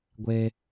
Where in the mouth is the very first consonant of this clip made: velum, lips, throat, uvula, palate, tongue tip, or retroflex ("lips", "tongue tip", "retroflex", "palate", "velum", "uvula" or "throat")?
velum